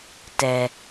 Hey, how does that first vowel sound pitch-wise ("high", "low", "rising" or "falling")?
low